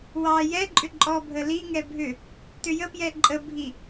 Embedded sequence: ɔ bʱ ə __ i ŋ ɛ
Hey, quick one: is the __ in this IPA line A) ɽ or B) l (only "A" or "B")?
B